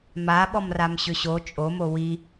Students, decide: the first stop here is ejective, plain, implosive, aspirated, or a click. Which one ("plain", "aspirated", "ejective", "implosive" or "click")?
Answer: implosive